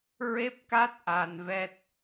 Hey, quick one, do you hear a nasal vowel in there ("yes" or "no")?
no